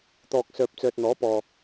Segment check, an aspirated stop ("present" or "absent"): absent